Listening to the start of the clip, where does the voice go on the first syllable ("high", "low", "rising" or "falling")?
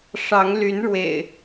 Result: rising